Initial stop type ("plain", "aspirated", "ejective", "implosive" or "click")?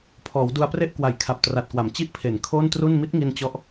aspirated